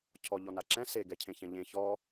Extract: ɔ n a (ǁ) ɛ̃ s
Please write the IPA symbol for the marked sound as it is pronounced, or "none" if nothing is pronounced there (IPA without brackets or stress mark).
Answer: ǁ